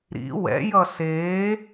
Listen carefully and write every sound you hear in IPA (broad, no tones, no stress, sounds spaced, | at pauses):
ɾ ḭ w ɛ̰ j ʌ s eː